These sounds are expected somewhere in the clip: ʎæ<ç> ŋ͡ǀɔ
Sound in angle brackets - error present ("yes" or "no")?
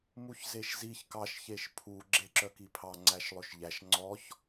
yes